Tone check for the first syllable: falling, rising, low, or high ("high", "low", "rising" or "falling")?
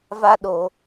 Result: high